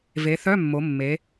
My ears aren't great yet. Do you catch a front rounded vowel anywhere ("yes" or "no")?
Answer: yes